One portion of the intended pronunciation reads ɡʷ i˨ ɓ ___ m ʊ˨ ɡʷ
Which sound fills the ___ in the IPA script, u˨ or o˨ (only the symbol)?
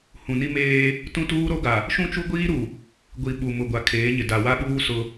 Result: u˨